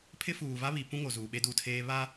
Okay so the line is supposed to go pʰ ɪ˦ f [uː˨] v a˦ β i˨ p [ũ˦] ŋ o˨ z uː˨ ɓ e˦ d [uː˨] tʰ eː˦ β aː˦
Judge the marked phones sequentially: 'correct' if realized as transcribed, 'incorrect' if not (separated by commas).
correct, correct, incorrect